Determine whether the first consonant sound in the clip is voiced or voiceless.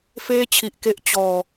voiceless